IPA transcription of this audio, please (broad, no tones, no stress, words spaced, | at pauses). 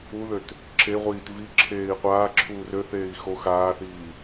uðøt | ǁeʁʷiːt vi ǁʰeːi̯qʷaː ǁʰuːrøθeːi̯ xo xaːθiː